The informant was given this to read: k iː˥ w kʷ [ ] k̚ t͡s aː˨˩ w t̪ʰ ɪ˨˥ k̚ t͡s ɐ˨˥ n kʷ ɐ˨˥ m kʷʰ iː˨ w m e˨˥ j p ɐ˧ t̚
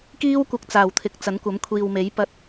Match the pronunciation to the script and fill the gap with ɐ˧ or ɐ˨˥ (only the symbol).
ɐ˧